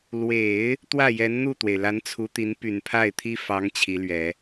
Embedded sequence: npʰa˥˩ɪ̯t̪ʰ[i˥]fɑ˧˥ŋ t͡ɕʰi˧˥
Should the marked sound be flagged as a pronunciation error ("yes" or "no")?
no